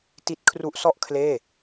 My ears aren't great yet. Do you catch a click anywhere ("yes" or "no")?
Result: no